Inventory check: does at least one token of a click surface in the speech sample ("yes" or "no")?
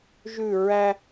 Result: no